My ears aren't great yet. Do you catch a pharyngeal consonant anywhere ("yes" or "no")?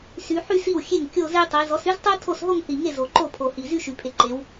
yes